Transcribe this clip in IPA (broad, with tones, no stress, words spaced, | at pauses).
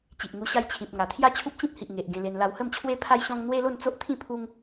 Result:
t͡ɕi˨ʔŋu˧ ɕa˧jt͡ɕʰĩ˨p̚ ŋa˨˩ t̪ʰja˥˧t͡ɕʰu˦p̚ t͡ɕĩ˦t̚hi˨ʔ ŋe˨ʔ ɡẽ˧le˧n la˧whə˥˧mt͡ɕʰwe˦ pʰa˦jɕɔ̃˦ŋ n̪we˦lo˥˧nt͡so˦ʔt̪ʰĩ˥˧ pʰu˦ŋ